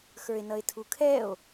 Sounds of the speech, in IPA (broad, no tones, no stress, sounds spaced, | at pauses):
x ə˞ e̯ n ʌ e̯ tʰ u kʰ ɛ o̯